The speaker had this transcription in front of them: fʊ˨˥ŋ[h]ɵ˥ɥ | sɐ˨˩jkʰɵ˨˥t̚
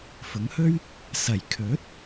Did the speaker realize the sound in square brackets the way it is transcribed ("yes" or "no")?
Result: yes